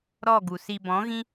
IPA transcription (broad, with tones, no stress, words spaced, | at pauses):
ɾɔ˦˨ɡu˨si˧ bɔ̃˨˦ ɣĩ˦